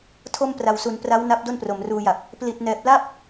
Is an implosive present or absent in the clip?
absent